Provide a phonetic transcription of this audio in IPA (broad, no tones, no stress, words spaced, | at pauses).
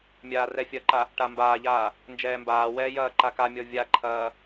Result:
mʲaːrɛfʲɐǃa | ʈambaːʎaː | nd͡ʒɛːmbaːwɛː jɐːǃakamʲɔ vʲaǃʰɐː